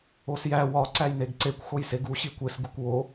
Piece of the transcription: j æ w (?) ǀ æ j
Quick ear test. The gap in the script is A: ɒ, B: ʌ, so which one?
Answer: A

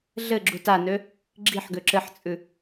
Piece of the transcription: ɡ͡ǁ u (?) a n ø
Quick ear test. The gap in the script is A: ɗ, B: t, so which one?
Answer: B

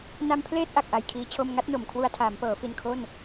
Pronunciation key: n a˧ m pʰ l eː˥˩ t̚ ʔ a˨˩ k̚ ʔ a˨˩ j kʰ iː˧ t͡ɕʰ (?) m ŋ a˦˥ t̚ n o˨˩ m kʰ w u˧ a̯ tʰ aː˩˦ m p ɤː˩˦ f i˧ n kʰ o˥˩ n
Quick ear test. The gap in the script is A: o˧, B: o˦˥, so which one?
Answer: A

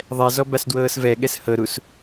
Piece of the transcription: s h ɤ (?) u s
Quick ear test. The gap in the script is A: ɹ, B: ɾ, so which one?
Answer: B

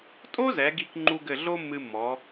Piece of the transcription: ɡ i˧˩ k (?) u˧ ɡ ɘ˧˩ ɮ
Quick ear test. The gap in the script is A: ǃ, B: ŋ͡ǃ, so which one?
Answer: B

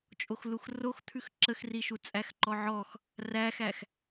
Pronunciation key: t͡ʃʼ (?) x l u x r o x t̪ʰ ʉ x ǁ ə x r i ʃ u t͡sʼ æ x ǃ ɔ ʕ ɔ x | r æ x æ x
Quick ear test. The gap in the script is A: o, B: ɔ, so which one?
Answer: A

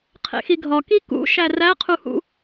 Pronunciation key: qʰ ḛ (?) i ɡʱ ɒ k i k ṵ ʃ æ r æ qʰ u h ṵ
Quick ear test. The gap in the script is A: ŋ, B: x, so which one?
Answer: B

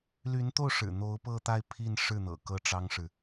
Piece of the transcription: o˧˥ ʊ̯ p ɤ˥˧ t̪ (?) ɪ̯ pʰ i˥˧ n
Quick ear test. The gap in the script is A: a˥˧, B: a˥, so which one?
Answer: A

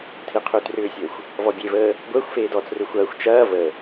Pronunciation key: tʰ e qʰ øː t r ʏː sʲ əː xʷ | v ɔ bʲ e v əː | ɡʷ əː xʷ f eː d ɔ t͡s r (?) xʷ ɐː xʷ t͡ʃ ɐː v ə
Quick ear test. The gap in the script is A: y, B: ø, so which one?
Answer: B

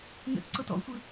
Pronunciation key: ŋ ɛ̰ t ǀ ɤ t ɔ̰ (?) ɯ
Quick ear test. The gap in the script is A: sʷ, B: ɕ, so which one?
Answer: A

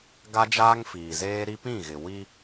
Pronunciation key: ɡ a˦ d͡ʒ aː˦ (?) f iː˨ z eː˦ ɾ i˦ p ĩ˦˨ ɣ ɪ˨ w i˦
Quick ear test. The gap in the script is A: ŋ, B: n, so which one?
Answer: A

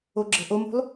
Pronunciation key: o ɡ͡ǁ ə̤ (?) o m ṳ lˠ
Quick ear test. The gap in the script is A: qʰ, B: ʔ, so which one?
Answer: B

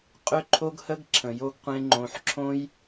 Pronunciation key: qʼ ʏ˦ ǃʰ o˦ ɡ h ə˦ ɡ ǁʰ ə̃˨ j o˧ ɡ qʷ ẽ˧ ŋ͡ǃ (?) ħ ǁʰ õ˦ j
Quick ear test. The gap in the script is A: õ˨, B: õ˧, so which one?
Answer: B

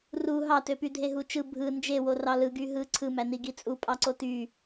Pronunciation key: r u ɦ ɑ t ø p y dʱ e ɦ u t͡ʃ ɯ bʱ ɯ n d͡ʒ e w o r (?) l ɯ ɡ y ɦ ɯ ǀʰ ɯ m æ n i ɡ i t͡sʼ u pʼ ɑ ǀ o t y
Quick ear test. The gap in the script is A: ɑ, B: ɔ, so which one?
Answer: A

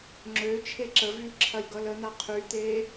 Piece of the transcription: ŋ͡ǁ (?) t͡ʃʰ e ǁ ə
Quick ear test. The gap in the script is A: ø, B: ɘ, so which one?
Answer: A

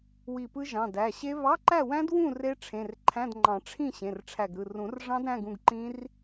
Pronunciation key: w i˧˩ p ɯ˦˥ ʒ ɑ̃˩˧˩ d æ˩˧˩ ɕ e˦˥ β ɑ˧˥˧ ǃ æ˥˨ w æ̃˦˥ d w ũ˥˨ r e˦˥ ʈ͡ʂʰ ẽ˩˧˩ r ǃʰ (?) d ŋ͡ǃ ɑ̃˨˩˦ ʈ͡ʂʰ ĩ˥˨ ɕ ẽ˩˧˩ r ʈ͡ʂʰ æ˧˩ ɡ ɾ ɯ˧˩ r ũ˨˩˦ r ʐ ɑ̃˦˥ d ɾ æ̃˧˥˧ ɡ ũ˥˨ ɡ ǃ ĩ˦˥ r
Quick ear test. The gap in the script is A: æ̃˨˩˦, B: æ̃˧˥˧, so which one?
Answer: B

